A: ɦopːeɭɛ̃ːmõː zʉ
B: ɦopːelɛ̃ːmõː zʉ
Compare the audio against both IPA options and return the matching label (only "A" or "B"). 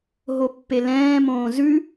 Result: B